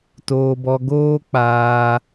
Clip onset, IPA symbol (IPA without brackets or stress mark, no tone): t